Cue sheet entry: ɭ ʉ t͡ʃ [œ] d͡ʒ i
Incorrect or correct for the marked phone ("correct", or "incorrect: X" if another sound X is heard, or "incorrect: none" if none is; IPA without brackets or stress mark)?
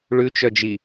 correct